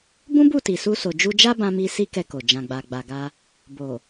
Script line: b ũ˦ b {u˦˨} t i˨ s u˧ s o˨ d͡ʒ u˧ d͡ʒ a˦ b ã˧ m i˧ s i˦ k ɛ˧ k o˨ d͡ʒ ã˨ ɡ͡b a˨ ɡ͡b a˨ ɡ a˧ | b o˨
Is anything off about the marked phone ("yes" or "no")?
no